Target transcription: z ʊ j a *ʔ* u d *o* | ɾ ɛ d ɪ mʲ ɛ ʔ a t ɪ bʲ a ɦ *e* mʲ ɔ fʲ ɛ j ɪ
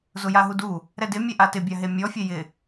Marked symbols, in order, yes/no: no, no, yes

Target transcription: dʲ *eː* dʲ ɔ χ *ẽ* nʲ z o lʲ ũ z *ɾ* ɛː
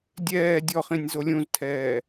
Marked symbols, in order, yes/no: no, no, no

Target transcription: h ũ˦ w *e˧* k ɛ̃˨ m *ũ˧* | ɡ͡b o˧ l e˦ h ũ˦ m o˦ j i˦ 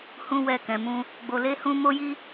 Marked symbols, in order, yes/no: no, yes

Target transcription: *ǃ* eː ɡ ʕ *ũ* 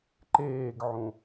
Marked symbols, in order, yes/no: yes, yes

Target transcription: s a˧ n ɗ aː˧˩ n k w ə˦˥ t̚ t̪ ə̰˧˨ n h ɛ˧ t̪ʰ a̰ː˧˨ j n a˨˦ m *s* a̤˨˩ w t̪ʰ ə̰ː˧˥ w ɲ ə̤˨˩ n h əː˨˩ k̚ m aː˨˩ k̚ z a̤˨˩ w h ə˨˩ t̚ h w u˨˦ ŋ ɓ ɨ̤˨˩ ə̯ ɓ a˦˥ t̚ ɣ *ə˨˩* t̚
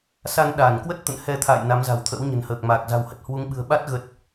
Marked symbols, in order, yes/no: no, no

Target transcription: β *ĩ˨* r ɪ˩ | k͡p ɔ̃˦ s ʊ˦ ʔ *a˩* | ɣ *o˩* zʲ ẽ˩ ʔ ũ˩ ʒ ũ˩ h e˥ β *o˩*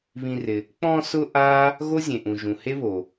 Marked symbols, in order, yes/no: yes, no, no, yes

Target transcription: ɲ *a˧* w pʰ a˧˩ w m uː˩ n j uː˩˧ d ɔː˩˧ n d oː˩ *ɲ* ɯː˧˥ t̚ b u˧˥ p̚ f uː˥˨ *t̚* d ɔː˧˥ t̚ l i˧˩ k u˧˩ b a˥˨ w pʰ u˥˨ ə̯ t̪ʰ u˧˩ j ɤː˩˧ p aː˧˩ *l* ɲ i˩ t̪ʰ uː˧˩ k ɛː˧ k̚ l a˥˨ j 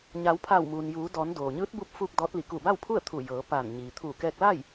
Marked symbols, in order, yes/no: no, yes, no, no

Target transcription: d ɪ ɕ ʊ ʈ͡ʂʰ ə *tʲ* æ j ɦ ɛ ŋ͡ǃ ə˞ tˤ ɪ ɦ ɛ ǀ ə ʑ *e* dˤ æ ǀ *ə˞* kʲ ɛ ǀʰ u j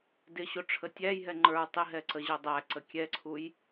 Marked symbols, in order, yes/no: yes, no, no

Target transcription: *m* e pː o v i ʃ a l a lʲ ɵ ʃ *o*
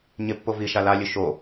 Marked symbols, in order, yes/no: no, yes

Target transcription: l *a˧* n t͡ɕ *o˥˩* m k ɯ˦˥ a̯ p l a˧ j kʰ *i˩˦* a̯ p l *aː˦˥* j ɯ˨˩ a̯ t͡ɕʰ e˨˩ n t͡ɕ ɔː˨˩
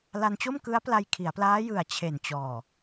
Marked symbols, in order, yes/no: yes, yes, yes, yes

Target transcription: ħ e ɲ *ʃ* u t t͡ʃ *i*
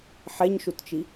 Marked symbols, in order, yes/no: yes, yes

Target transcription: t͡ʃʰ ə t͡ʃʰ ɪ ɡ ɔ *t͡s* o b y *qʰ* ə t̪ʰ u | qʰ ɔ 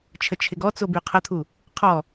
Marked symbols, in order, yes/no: yes, yes

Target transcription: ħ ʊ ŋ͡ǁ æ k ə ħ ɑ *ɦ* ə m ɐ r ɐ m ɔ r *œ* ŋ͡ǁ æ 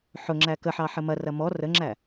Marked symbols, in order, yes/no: no, no

